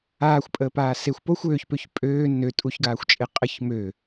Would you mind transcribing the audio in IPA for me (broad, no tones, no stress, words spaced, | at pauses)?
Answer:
aːxʷpʼəːpaː sexʷ poxʷ øːçpøç pʼøː nø tʼuçɡaːxʷt͡ʃʼe qʼəç mø